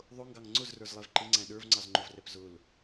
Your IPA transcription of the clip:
ðˤʊŋɡɑŋ ŋ͡ǀʊzrə˞zlˠɛv ǃɪŋ͡ǀæ̃ ɗə˞vŋ͡ǀɑzŋ͡ǃʊvrɛp zʊl

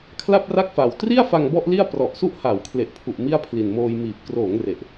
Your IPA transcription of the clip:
kʰla˥˩p̚ra˥˩k̚fa˨˩w tri˥˩a̯fa˧ŋ bɔ˥˩ʔli˥˩a̯ prɔ˨˩ʔsu˥˩ʔha˩˦w kʰle˨˩ʔpʰu˨˩ʔ mi˥˩a̯pʰli˨˩nmoː˧j miː˨˩p̚kroː˩˦ŋ re˨˩ʔ

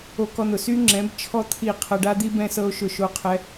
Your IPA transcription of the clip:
o˧kɔ˧n̪ʊ˨ sy˦ŋ͡ǁɛ̃˨˦b t͡ʃʰɔ˦ t̪ʰi˦˨ qʰɤ˧ɖa˦d̪i˦ bɛ̃˦sɤ˦o̯ʃʊ˦˨ʃo˦ qʰɛ˦

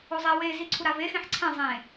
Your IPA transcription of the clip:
ozˤe we ziǀʰuɾave xẽħǀʰɛ̃ zˤẽ

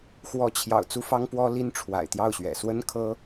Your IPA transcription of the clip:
xwɔ˧˥t͡ɕʰjɑ̰˨˩ʊ̯ t͡su˥fɑ˥ŋpwɔ˥ li˥nʈ͡ʂʰwa̰˨˩ɪ̯t̪jɑ˥˩ʊ̯ɕɥɛ̰˨˩ swə˥nkʰɤ˥

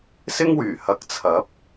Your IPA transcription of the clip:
sɪ˥ŋwyː˨˩ hɐ˨˥k̚t͡sʰɐ˨˥p̚

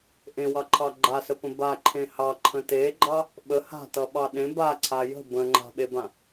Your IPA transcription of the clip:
ʔẽwɑǃʰɑ ɡ͡ǃasəpə̃ baǃʰẽ hɑǃʰə̃ teɡ͡ǃɑ | ɓə ha̤tʌɓɑ ɗẽ baǀʰa jə̤ bə̃ŋ͡ǃa̤ɓebã

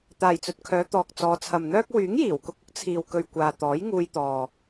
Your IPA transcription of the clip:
t̪aː˨jt͡sɵ˨t̚kʰœː˨˧ t̪ɔː˨k̚ t͡sɔː˨˧t͡sʰɐ˨mn̪œː˥k̚ wyː˨˥ŋjiː˨˩wkʊ˧k̚ʊ˥k̚ t͡sʰiː˨wkɵ˨ɥ kʷaː˨t̪ɔː˨˥jŋuː˧jt̪ɔː˨

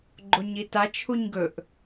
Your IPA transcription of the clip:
ɡ͡ǃoɲita t͡ʃʰuɲɡɵʔ

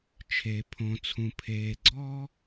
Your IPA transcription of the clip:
t͡ʃʰe˩pʰõ˩ t͡sʰũ˩pʰeː˩ɡ͡ǀɔː˥

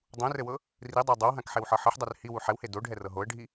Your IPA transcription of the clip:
dˤũrɘwɤ | ridˤa dˤowɦãkħewħɤ ħɘħdˤɵr hiwu ħɛwhe doɖʱɛrɤ ɦoə̯ɖʱi

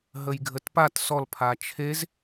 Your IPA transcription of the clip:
ɦəjɡʱətpat sɔl pʰat͡ʃʰez

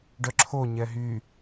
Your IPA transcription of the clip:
ɖœǁʰoɲɛ ɦy

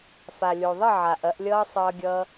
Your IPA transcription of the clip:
fa˨lʲo˨ðˤə˥˨ ʕa˨ʔɐ˨˦ʔlʲʌː˦ sˤʌː˦ɡʲʌː˦

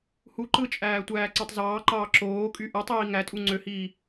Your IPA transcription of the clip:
hu ǃɯt͡ʃʼæː tʷæːǀɑtˤzɑːǃɑː ǁoːkʼy ʔɯtˤiː ŋætʼu ŋ͡ǀøhiː

